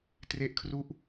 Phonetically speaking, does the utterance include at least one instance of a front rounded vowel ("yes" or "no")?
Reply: no